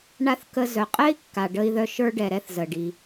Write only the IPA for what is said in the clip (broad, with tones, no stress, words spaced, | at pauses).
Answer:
ɳa˧θ kə˧ zœ˩qʼɛ˥i̯kːa˩ ɖə˧i̯ðœ˧ ʃə˞˧ɖɛ˩ɾɛ˧θ zə˩ɖi˩